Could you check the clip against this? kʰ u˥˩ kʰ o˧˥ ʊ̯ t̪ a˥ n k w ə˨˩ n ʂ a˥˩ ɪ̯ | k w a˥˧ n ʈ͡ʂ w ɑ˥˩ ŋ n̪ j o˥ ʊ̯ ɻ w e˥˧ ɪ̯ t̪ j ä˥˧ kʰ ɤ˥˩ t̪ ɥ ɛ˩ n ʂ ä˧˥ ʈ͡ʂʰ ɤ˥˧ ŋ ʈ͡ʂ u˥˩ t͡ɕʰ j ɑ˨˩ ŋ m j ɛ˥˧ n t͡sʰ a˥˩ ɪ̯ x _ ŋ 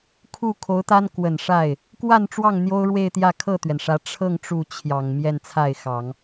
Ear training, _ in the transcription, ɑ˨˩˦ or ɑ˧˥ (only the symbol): ɑ˨˩˦